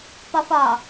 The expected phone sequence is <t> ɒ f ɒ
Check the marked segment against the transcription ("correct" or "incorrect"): incorrect